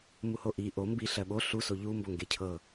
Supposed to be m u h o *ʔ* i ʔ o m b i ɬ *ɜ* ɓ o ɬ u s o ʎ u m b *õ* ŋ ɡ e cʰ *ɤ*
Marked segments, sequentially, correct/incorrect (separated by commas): correct, correct, incorrect, correct